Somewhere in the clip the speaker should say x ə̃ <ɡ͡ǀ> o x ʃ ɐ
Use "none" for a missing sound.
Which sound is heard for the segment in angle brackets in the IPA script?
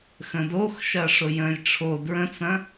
d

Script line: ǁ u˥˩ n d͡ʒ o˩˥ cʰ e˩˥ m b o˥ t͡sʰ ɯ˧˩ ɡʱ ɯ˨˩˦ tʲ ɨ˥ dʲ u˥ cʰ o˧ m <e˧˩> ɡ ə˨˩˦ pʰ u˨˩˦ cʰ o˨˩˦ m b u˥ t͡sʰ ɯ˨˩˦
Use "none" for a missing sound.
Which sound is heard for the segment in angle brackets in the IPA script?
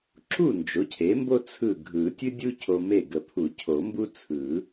e˧˩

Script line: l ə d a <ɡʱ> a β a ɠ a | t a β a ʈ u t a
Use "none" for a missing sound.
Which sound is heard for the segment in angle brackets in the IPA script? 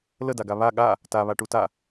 ɡ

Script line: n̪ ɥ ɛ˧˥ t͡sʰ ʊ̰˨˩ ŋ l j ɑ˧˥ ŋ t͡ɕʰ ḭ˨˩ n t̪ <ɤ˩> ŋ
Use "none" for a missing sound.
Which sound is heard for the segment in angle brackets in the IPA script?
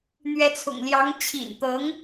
ɤ˧˥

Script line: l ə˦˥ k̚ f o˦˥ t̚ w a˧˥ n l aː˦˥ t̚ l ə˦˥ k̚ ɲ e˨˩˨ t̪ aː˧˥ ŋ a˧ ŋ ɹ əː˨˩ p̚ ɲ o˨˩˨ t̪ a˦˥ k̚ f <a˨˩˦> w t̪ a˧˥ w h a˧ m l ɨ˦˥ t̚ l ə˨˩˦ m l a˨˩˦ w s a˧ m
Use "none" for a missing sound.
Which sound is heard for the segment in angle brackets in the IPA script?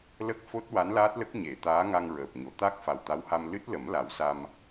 a˨˩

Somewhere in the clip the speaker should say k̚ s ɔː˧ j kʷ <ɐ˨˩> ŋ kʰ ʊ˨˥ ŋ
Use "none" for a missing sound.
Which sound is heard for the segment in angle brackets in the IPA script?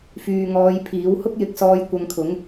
ɐ˧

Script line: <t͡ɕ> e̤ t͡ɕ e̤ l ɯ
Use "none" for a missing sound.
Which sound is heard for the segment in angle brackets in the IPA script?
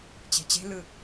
t͡ɕ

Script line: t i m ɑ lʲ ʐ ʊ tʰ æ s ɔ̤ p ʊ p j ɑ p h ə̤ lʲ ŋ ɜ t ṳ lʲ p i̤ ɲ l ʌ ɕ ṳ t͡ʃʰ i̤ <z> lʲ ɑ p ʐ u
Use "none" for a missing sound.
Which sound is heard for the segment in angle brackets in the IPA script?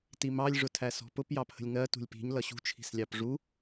s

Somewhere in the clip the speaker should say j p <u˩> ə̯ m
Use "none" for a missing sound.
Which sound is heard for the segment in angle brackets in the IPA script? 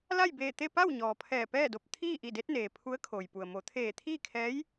u˩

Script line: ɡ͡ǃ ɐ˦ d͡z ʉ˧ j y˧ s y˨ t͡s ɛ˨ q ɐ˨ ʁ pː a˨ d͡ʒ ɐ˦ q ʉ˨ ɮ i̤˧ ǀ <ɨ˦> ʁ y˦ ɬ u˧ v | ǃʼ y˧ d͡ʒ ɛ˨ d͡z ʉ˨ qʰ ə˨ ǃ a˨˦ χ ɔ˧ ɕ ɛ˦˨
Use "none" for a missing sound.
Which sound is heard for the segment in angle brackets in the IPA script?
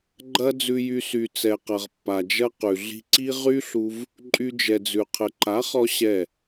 i˦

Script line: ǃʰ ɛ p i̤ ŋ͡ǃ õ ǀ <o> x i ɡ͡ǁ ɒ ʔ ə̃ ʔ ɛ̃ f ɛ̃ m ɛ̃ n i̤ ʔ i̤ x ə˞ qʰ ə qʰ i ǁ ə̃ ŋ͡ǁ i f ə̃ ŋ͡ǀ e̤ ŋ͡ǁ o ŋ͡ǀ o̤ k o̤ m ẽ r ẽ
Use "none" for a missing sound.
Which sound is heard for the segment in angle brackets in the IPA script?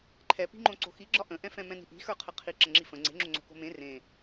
o̤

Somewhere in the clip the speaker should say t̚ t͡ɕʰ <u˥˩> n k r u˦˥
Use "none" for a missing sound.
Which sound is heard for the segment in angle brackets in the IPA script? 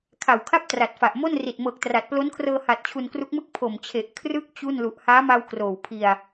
u˧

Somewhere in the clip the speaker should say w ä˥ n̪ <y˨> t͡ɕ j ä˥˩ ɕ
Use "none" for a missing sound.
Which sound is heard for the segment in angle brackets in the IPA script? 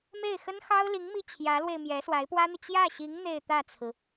y˨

